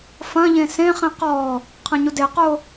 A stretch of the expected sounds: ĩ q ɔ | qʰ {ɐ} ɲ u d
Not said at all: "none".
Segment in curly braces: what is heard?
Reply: ɐ̃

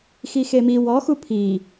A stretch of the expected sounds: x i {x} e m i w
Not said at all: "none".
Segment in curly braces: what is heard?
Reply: x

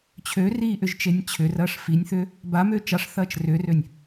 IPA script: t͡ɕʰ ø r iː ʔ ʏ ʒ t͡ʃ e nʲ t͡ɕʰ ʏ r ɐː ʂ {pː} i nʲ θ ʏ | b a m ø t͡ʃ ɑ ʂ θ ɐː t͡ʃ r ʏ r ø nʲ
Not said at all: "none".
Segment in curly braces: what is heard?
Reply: f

